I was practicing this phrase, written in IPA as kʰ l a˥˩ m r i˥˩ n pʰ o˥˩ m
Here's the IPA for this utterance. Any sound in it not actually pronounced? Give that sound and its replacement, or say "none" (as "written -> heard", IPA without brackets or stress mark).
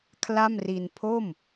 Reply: i˥˩ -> i˧